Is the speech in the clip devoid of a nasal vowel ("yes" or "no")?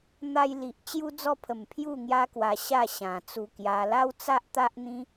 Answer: no